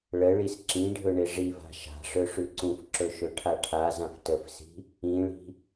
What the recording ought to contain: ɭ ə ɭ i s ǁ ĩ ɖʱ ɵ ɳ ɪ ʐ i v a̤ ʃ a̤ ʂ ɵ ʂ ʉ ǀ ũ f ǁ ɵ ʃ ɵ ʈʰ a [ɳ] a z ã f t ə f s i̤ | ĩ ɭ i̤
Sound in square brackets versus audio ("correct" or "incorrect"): incorrect